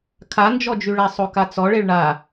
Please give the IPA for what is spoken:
kʰand͡ʒɔd͡ʒyɭa sˤokat͡sɔ ɭeɭɳa

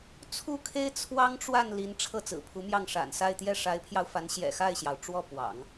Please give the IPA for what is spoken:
t͡sʰu˥˩kʰe˥ɪ̯ t͡sʰwɑ˥ŋʈ͡ʂwa˥˩n li˧˥nʈ͡ʂʰɤ˥˩ t͡sɹ̩˨˩pʰu˧˥mjɑ˥˩ŋ ʂa̰˨˩nsa˥˧ɪ̯ t̪jɛ˥˩ʂa˧˥ɪ̯pʰjɑ˧ʊ̯fa˧˥n ɕjɛ̰˨˩xa˥˩ɪ̯ɕjɑ˩ʊ̯ ʈ͡ʂwɔ˥˩pwɑ̰˨˩˦ŋ

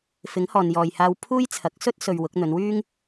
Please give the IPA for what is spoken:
fɪ˨˥ŋhɔː˨njɔː˨jhaː˧w pʰuː˥jt͡sʰɐ˨˥k̚ sɵ˥t̚ sɵ˧ɥwʊ˨˥k̚ n̪ɵ˨˧nwyː˥ŋ

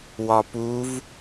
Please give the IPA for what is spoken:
wɒpuv

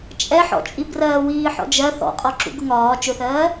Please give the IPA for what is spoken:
t͡ʃʼɛħɔ̰t͡ʃʼib rɜːwiːħɔ̰d͡ʒɜ θɔ̰qʼɒǁṵ ɡʊŋɒː t͡ʃʊθɜː

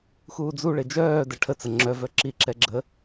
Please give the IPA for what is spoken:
xuːd͡zuɭe d͡ʒœː dɛʈʰət͡sə ŋ͡ǁœvœ ǁiǁɛɡ͡ǁə

